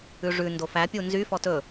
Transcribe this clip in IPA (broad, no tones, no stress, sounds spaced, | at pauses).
ʉ ʐ ʉ n d o f æ pʲ u n z y f ɔ t ɵ